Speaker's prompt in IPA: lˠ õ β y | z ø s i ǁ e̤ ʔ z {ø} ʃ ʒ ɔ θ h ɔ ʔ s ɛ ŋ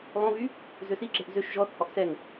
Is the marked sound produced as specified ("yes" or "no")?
yes